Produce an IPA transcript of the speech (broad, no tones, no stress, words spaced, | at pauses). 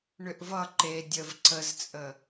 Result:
ɳʏʔvʌ ǃe dʲəv ǀəzt͡sʼə